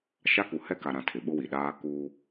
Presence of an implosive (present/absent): present